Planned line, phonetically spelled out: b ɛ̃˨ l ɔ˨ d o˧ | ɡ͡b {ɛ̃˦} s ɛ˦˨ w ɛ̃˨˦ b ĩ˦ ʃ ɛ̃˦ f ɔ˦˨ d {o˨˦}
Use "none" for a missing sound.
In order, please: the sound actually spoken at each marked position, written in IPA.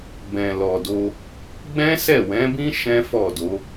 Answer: ɛ̃˦, o˨˦

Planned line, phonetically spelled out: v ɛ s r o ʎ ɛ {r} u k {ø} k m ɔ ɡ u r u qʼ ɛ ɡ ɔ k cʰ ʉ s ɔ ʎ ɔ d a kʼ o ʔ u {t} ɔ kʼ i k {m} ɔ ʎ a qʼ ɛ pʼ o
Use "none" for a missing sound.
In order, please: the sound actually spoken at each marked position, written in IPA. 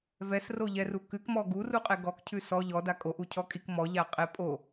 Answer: r, ʉ, cʰ, m

